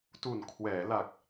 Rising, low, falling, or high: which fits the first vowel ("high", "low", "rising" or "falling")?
low